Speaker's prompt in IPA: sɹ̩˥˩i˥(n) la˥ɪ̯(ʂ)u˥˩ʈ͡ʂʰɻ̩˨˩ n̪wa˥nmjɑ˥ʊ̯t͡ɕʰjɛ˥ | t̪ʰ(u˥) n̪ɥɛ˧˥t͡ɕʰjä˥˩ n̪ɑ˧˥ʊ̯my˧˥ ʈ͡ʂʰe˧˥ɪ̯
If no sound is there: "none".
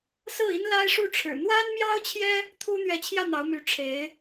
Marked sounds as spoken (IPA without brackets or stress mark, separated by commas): n, ʂ, u˥